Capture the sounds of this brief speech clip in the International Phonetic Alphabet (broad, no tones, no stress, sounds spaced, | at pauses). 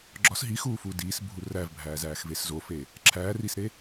ɡ͡ǁ ɒ s ɦ i x uː f uː d iː s bʱ u r æ v bʱ æː z æː x v e s z o f e | ǁʰ æː r i s ɾ e